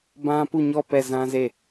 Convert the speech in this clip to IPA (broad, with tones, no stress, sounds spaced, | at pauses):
b ã˦ p u˦˨ ɲ ɔ˦˨ p ɛ˦˨ z ã˦ z e˦˨